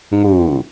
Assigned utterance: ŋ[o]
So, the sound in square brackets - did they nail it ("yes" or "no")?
no